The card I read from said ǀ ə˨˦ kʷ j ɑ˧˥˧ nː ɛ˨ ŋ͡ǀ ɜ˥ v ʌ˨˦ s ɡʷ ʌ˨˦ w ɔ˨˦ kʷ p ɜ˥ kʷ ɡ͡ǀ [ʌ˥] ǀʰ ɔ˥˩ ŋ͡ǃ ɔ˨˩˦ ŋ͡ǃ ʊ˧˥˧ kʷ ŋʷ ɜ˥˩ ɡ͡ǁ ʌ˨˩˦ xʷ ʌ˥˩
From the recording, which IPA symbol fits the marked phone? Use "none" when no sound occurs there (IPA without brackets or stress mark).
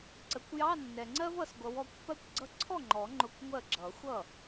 ʌ˥